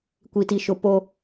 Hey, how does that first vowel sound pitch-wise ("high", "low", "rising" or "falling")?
high